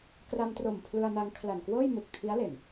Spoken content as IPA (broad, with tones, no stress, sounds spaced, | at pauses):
k r a˧ m t r o˨˩ m pʰ l ɯ˧ a̯ n a˧ ŋ kʰ l a˨˩ n k w ɤː˥˩ j m u˨˩ k̚ tʰ i˦˥ a̯ l e˨˩ n